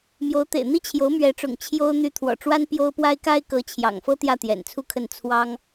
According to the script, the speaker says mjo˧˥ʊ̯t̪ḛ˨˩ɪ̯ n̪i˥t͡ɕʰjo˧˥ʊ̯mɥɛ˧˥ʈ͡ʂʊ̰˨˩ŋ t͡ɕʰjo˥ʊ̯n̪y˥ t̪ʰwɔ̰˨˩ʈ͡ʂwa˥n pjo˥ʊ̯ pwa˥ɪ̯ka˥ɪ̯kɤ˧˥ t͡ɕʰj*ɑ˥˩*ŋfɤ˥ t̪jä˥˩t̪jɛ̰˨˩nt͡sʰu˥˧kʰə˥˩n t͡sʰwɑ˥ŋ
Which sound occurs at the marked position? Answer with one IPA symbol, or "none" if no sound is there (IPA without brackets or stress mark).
ɑ̰˨˩